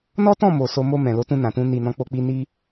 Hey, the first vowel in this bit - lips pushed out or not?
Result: yes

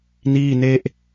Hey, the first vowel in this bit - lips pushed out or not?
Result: no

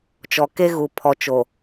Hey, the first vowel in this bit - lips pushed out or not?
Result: yes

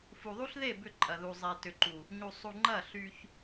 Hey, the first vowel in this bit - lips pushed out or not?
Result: yes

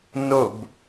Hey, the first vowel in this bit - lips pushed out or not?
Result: yes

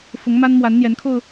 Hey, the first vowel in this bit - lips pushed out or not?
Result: yes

